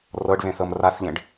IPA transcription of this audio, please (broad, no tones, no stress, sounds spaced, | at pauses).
r ɤ ɖ β ẽ θ ɤ m r a θ ʎ ẽ ɖ